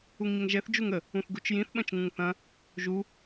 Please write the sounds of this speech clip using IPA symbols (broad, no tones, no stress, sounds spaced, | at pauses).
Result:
u ŋ ɲ ə ŋ ʒ ɛ θ d͡ʒ u ŋ ə | ũ θ ɡ u t͡ʃ j ĩ θ ɓ ɐ̃ t͡ʃ ŋ ũ ŋ θ ɐ̃ | ʒ u